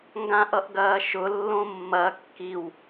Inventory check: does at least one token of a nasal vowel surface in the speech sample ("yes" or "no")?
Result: yes